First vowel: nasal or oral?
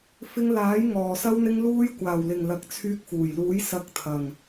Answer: oral